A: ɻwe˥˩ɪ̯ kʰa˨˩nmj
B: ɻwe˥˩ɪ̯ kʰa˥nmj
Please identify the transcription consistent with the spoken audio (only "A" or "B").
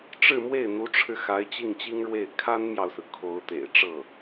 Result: B